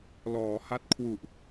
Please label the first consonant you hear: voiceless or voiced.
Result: voiced